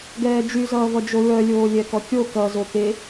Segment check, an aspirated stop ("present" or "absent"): absent